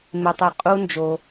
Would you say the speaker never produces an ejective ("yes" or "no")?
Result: no